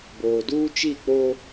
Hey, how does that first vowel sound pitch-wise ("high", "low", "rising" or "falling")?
low